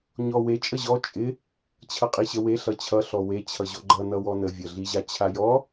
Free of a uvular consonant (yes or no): no